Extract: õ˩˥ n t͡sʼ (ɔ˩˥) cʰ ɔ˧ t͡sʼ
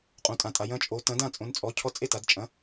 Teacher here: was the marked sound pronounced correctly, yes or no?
yes